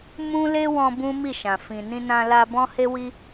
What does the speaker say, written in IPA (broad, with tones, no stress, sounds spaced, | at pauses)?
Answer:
m ũ˦ l e˦ w ɔ̃˧ b ũ˦ m i˦˨ ʃ ã˨ f ĩ˨ n ĩ˧ n ã˧ l a˧ b ɔ̃˦ h e˦ w i˦